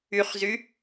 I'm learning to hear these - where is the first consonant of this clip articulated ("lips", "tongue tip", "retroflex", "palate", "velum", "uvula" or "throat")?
uvula